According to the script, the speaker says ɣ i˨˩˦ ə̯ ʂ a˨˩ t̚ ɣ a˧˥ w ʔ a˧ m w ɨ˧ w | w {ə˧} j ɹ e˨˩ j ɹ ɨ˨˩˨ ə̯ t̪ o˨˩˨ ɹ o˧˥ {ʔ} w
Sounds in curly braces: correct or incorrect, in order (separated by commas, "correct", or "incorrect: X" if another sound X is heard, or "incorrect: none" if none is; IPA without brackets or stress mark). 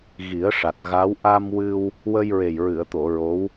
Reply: correct, incorrect: none